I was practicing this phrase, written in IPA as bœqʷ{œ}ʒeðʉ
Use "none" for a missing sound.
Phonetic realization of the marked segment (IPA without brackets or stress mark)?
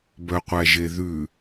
æ